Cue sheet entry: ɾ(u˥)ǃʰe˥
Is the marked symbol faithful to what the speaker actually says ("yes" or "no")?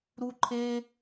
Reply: yes